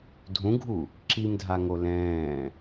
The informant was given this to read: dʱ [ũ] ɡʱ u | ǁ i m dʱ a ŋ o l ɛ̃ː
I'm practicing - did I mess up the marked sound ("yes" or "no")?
no